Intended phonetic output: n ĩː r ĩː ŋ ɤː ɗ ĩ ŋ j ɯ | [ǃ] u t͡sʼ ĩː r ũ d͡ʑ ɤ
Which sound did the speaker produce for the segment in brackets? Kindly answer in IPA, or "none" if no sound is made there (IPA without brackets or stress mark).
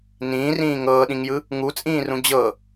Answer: ŋ